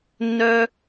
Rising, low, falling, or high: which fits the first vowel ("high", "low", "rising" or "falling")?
high